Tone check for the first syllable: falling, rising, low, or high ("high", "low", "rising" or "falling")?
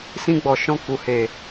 high